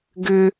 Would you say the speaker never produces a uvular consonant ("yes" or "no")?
yes